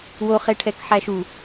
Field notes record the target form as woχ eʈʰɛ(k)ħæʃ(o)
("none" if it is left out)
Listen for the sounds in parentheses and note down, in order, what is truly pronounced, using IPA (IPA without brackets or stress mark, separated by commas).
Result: k, u